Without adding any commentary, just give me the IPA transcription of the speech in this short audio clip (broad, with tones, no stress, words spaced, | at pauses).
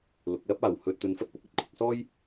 lʊ˨k̚lɐ˥p̚aː˨w hɵ˧t̚ t̪ɵ˧nfɐ˥t̚pʊ˨k̚ɐ˨˥t̚ kʷʰɪ˧k̚sɔː˥j